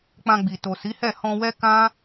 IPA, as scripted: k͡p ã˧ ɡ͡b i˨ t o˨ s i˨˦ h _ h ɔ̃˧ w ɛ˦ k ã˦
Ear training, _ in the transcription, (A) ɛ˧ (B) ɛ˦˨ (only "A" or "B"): B